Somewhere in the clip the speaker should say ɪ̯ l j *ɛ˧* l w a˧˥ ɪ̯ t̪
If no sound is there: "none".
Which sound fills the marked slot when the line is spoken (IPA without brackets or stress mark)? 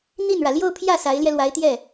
ɛ˧